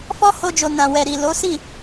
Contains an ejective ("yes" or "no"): no